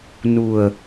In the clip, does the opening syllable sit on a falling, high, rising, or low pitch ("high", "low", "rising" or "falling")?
low